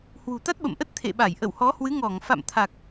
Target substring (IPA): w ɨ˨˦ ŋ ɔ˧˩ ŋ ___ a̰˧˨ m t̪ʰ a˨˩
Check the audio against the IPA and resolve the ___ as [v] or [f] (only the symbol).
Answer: f